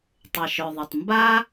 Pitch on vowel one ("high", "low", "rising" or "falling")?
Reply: low